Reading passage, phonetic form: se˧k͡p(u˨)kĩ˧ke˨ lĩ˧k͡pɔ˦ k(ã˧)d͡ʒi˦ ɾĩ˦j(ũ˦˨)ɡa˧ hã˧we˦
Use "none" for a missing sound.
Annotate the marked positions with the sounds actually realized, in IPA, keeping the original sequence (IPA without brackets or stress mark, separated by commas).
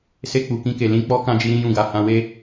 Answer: u˨, ã˦, ũ˦˨